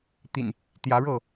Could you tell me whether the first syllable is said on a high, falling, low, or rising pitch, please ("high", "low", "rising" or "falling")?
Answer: low